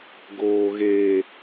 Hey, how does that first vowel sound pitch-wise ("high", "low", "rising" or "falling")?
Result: low